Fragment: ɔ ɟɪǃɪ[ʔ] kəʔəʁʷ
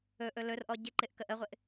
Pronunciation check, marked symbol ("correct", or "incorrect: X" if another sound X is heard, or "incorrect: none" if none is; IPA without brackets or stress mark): correct